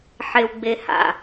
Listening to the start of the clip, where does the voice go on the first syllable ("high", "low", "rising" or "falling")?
low